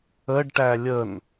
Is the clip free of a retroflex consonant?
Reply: no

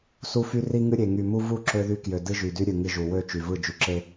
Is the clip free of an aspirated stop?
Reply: yes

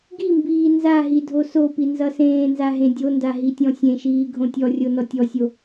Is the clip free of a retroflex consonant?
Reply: yes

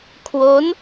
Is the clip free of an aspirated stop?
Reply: no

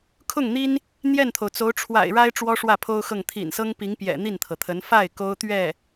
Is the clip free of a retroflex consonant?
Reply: no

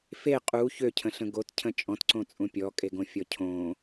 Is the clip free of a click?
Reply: no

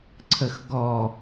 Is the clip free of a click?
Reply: no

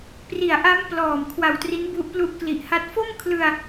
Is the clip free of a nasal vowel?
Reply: yes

